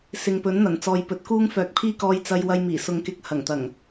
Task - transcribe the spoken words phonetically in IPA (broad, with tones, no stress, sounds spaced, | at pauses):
s ɪ˨ ŋ p ɵ˨˥ n n̪ ɐ˨˩ n t͡s ɔː˨ j p ɵ˨˥ t̚ k uː˥ ŋ f œː˨ k̚ pʰ iː˥ k ɔː˧ j t͡s ɐ˧ j w ɐ˧ j m iː˨˩ s ʊ˨˧ ŋ k ɪ˨˥ k̚ h ɐ˨˩ ŋ t̪ ɐ˨˩ ŋ